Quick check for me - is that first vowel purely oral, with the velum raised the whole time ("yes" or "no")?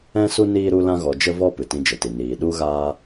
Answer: no